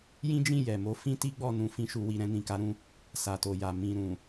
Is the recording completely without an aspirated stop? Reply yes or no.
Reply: yes